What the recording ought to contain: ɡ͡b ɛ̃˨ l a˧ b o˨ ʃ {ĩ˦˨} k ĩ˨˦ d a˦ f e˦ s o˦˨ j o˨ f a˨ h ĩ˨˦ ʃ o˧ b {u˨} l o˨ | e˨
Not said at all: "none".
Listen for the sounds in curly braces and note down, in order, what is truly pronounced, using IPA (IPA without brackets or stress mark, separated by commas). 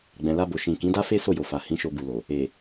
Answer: ĩ˨, u˨